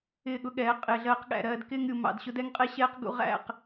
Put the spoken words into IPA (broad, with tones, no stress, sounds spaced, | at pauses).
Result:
ɪː˦˨ ɠ ʊ˦ ɠ ɛː˨˦ qʼ ɪː˨ ɮ ɜː˧ q ɠ æ̰˨ ɾ ɜː˧ d k ɪː˧ ŋ ɾʲ u˨ m ɑ̰˨ d ɕ ʊ˧ d ɛ˦ ŋ qʼ ɛ˦ ɕ ɛː˦ q ɡ ṵ˧ ʁ æ̰˦˨ q